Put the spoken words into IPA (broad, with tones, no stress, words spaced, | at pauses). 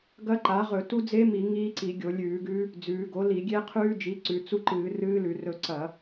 ɡɐ˦˥ǃa˩˥ ʁɵ˧˩˧tu˦˥ d͡ze˦˥mi˧˩˧ ŋiː˦˥ǀi˧˩˧ ɡʲo˧˩˧ lʲʉː˧˩˧ɡʉː˦˥ | d͡zʉː˩˧ɡo˩˥ li˧˩˧ɡʲe˦˥ qʰʉː˦˥d͡ʒi˩˥ǀʉ˩˧ t͡su˦˨ǃɨː˧˩˧ rɨː˦˥lʉ˧˩˧rɵ˦˨ ǀɐ˧˩˧